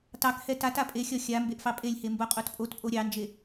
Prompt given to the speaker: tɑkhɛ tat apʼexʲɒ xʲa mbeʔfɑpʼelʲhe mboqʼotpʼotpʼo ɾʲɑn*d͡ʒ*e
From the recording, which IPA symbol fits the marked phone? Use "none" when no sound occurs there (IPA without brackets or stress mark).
d͡ʒ